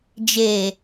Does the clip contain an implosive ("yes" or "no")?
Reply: no